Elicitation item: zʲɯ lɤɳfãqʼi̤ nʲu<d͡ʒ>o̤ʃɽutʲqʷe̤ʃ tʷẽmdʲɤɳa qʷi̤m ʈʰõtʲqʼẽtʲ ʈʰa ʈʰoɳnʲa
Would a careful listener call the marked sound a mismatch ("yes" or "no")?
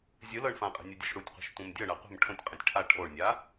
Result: yes